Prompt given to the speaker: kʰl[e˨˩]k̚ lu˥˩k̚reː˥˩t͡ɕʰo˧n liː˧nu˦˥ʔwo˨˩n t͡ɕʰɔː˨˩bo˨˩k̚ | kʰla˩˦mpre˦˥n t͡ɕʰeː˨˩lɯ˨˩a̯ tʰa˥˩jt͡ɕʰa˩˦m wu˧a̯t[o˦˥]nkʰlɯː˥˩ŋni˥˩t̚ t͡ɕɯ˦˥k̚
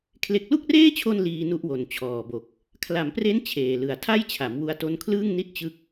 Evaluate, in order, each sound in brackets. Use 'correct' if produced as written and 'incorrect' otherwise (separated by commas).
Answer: incorrect, incorrect